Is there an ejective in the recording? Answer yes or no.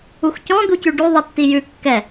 no